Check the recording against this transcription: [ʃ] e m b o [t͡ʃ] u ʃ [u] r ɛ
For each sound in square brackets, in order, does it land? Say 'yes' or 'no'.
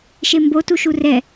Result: yes, no, yes

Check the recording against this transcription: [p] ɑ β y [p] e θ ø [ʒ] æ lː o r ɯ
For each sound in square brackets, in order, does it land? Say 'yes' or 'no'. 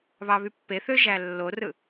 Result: no, no, yes

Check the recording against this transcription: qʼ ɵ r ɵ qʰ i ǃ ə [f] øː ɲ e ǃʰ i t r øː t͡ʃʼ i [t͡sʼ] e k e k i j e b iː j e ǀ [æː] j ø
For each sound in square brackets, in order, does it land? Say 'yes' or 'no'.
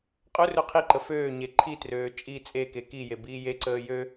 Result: yes, yes, no

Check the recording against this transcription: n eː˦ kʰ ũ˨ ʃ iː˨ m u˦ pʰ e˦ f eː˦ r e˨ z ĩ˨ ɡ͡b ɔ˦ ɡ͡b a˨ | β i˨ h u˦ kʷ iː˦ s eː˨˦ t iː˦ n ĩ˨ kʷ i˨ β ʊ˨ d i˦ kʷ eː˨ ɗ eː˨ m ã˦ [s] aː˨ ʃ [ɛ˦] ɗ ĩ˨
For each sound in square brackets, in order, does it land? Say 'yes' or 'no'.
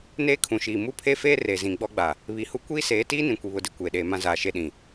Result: no, no

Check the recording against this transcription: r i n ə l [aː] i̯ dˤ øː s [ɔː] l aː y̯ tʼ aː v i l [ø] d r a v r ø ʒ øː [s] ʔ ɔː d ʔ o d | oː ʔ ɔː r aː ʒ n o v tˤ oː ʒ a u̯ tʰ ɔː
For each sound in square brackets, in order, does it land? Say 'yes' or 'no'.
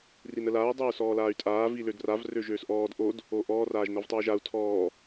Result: yes, yes, yes, yes

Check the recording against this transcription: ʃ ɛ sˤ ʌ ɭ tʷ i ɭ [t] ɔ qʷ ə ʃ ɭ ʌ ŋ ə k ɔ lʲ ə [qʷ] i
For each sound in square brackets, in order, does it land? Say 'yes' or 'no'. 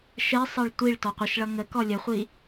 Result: yes, no

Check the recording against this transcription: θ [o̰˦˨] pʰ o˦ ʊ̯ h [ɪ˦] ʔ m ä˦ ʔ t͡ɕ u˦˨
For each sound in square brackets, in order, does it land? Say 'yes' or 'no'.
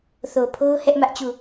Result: no, no

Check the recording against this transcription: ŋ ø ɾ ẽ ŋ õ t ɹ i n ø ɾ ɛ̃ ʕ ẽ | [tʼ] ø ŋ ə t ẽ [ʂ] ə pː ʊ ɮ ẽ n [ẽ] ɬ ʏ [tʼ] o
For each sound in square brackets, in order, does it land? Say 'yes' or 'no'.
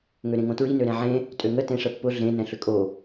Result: yes, yes, no, no

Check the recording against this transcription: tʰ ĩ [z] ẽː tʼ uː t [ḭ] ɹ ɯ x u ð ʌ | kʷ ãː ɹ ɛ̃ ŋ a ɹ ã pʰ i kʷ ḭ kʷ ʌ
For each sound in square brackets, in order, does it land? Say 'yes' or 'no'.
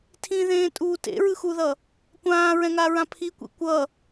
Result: no, no

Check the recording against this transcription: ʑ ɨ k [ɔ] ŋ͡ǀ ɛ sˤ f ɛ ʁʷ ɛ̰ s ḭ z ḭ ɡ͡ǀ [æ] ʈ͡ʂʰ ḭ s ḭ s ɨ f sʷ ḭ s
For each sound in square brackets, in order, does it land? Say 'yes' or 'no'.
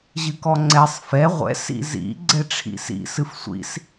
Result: yes, no

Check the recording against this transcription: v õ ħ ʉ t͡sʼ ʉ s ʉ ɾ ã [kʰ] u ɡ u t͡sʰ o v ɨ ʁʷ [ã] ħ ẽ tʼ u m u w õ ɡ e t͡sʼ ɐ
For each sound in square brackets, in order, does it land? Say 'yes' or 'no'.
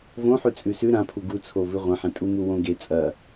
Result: no, no

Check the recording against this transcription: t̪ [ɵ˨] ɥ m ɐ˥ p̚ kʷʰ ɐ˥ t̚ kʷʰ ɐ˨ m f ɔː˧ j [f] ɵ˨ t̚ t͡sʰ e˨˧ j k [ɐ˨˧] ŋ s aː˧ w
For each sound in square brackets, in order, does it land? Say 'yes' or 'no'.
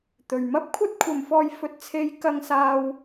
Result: yes, yes, no

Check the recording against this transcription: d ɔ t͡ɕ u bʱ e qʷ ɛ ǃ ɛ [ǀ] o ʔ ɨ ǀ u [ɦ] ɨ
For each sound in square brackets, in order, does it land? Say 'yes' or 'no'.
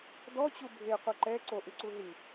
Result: yes, yes

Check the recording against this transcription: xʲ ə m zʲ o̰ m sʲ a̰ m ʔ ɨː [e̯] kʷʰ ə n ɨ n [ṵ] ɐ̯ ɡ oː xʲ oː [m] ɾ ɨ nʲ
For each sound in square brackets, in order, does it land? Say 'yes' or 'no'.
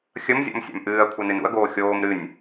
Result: no, yes, yes

